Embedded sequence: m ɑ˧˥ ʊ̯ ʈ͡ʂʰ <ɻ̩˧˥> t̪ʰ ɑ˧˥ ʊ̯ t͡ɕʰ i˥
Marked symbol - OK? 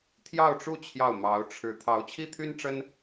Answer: yes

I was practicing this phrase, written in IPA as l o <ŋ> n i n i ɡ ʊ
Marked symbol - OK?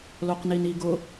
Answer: no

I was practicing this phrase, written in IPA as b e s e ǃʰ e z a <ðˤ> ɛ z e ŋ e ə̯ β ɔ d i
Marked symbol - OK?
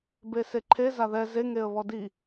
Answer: no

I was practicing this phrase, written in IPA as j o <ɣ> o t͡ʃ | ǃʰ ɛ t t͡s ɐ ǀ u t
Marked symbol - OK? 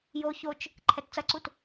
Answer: no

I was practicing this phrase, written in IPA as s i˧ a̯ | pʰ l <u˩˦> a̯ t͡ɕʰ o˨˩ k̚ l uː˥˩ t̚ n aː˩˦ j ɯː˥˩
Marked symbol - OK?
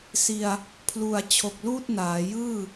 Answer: no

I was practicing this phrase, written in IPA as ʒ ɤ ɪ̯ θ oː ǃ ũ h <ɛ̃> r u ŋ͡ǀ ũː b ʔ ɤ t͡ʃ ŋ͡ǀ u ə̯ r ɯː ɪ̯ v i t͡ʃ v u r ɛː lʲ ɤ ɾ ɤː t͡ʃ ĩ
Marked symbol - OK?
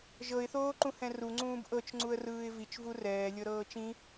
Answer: yes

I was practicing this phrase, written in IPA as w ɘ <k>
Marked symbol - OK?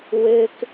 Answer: yes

